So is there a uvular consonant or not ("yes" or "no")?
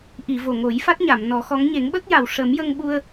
no